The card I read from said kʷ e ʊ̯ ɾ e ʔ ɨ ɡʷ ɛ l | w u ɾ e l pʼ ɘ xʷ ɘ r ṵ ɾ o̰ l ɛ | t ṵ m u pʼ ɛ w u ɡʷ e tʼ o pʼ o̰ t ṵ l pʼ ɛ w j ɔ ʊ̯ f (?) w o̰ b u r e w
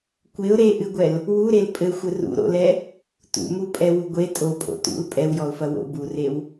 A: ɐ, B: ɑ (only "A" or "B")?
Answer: A